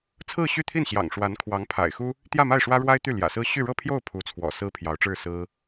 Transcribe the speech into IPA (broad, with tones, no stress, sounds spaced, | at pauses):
t͡sʰ ɹ̩˥˧ ɕ y˥˧ t̪ʰ i˥˩ n ɕ j ɑ̰˨˩ ŋ ʂ w a˧˥ n kʰ w ɑ˧˥ ŋ pʰ a̰˨˩ ɪ̯ x u˥ | t̪ j ä˥˧ m a˥˩ ɪ̯ ʂ w ä˥ ɻ w a˥ ɪ̯ t̪ y˥˩ l j ä̰˨˩ s ɹ̩˥ ɕ y˥˧ ɻ ɤ˥˧ pʰ j o˥˩ ʊ̯ pʰ u˧˥ t͡sʰ w ɔ̰˨˩ s ɹ̩˥ pʰ j ɑ˧˥ ʊ̯ ʈ͡ʂ ɻ̩˥˩ s ɹ̩˥